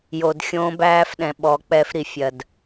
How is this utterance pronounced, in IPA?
j o˨ d xʲ õː˦ b æː˦ f ɗ ɛ̃˨ ɓ ɔ˨˦ k͡p ɛ˦ f ɾ i˨ fʲ ɜ˨ d

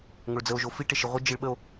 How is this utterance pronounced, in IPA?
ŋ o ɭ d͡z ə o̯ ʒ o f i ʈ e ʃ i ʁʷ e d͡ʒ i ɭ ɓ ə o̯

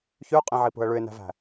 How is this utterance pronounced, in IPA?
ç ʉ ʊ̯ qʼ ĩ ʕ i p ṳ ə̯ ɭ ʉ ɪ̯ n æ̤ v æ̤

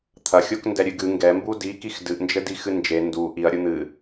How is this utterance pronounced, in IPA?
t̪ʰ ɐ xʲ o k n d ɛ ɾʲ ɨ ɡ ɨ ŋ ɡ ɛ m b u d i k i x d ɨ ʔ n d͡ʒ ɘ d i x ɨ n d͡ʒ e n d u ʔ i ɐ̯ ɾʲ u n̪ ɨ

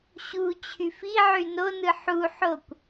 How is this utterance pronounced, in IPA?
ɕ u t͡ɕʰ y f i ʕ y n o n ɯ ħ u ħ o kʷ

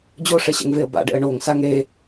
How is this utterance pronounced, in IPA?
d͡ʑ o ʂ ɛ ɕ ɛ̰ ŋ v e ə̯ b a̰ ɖ ɛ̰ ə̯ ɳ o ŋ s a ŋ ɾ e

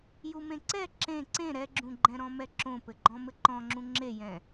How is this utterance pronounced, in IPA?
j u m ẽ ǀ ɛ ǁ ẽ ǀ ẽ ɾ ɛ ɡ͡ǁ ũ ɡ͡ǃ ɛ̃ ɾ ɔ̃ m ɛ ǁ õ p ɘ ɡ͡ǃ ɔ̃ m ɘ ǃ ɔ̃ ŋ͡ǁ ũ ŋ͡ǁ e j ɛ̃

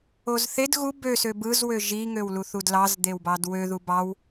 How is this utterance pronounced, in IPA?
o z θ e d ɣ u b ø s ø b ɯ z w ø ʒ i ŋ ø w l u θ u d l ɑ z d̪ e w b ɑ d w ø ð u b ɑ w

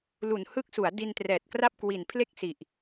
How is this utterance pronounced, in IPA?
l u˨˩ n h ɯ˦˥ k̚ s u˩˦ a̯ d i˧ n t r ɛː˨˩ t̚ k r a˥˩ p̚ k w i˨˩ n pʰ l e˥˩ k̚ s i˨˩ ʔ

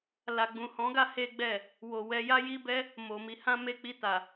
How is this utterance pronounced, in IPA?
l a˨ ɡ͡b ũ˨ h ɔ̃˨˦ ɡ a˦ h e˦ ɡ͡b ɛ˦˨ | w o˨ w ɛ˧ j a˦ j i˦ b ɛ˦ | m o˨ m i˨˦ h ã˦ m e˧ k͡p i˧ t a˨

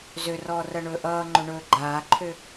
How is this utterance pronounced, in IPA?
z ø r ɔː r ɜ ɳ ɵː ʔ ʌː ŋ͡ǃ ɵ ɳ ɵː ɡ͡ǃ aː ǃʰ ø

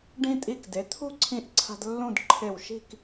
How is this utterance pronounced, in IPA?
ɖ ĩ˧ tʼ i˧˩ k d e˩˧ t̪ʰ ṳ˥˧ ǀʰ ĩ˧ ʔ ǀʰ a̤˧ d lː ũ˥˧ d ǃʰ e˧˩ w ʃ i̤˥˧ k

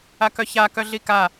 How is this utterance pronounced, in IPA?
a k œ ç a k œ ɮ i k a

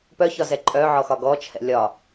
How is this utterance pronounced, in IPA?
p œ ç ɒ z ɛ ǃʼ œ ʕ ɔ x ɒ ɡ ɔ t͡ʃʰ ɛ̰ lʲ ɒ

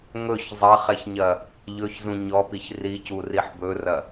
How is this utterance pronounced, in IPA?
ŋ ɵ ç zˤ ɐ χ ɛ ç ɲ ɐ | ʎ ɵ ç z ũ ɲ ɔ p i ç r i c u r i ħ b ɵ r ɐ

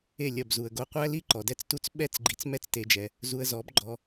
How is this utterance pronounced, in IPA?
e˦˨ lʲ ɐ˦˨ b z u˨ ə̯ ɡ o˧ qʷ æ˦ l i˦ ǃ ɔ˨ d ɛ˦ t͡s t u˦ t͡s ɓ ɛ˦˨ t͡s ɡ͡ǃ i˨ t͡s m ɛ˦ t͡s t e˧ d͡ʒ ɛ˧ | z u˧ ə̯ z ɔ˨˦ b ɡ͡ǃ ɔ˧

